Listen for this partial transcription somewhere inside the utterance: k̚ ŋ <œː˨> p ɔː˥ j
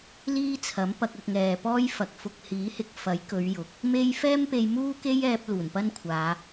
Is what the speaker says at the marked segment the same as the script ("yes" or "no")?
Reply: no